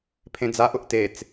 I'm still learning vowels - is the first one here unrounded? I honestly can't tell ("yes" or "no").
yes